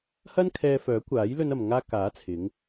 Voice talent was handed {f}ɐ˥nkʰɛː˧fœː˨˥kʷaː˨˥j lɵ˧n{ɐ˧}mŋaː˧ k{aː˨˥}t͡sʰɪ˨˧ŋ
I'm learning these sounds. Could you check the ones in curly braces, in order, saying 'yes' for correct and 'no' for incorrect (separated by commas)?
no, no, yes